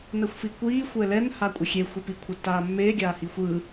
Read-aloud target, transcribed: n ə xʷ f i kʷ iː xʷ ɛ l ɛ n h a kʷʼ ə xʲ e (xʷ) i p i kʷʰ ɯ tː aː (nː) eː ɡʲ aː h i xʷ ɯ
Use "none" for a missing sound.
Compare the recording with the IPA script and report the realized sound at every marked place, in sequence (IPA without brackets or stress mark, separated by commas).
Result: xʷ, mː